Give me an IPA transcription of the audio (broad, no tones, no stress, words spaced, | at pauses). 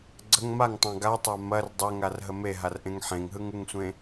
ɡ͡ǀəŋ maŋtˤã ɡatˤa mɐr dˤɛŋarɦə meɦarʔẽŋ ħẽŋɦɯŋɯŋsʷẽ